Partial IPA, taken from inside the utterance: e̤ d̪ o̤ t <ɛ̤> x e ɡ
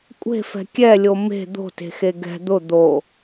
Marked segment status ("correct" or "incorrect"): incorrect